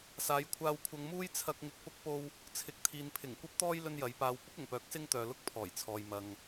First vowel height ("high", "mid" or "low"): low